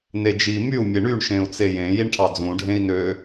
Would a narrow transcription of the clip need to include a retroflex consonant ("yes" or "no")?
yes